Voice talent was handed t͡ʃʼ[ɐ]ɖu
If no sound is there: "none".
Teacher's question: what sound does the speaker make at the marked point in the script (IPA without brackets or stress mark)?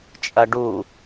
ɐ